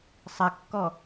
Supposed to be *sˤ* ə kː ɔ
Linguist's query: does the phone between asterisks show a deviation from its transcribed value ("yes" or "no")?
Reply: no